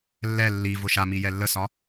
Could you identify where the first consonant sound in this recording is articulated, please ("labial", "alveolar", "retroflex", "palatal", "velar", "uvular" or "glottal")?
alveolar